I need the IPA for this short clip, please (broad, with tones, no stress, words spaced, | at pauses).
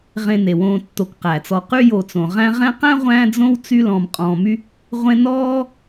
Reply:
ʁẽ˨ne˩wõː˨ tːo˨kqæ˩t͡sɔ˨ qy˦jo˨t͡sõ˩ʁæ̃˦ ʁɛ̃˦qæ̃˥ʁʷæ̃˦d͡zõ˦w t͡sy˦ lɔ̃ː˨mqʼɔ̃ː˨my˦ | ʁʷẽ˦nɔː˥